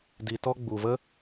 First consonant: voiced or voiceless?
voiced